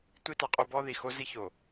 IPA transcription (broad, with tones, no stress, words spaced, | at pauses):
tʷi˦ta˨qʼo˦ bɔ˦ ði˨xo˦zi˦ ço˨